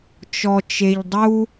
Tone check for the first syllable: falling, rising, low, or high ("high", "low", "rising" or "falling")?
low